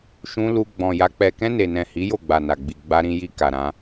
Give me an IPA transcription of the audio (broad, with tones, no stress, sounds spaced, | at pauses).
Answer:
ʃ ũ˧ l u˧ ɡ͡b ɔ̃˨ j a˨˦ k͡p ɛ˧ k ɛ̃˧ n e˨ n ɛ̃˨ h i˨˦ j o˦˨ ɡ͡b a˨ n a˨ ɡ͡b i˨ ɡ͡b a˧ ɾ ĩ˧ j i˧ k a˨ ɾ ã˧